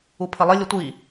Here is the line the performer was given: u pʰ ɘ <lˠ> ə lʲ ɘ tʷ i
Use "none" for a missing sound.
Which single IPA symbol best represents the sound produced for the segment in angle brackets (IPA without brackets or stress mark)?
lˠ